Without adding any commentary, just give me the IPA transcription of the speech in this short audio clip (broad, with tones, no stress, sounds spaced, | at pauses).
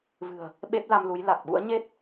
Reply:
v ɨ̤˨˩ ə̯ | ɓ e˦˥ p̚ l a˧ m l u˨˦ j l a˨˩ k̚ ɓ ṵ˧˥ ə̯ ɲ e˦˥ t̚